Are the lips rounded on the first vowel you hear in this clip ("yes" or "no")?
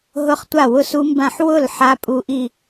yes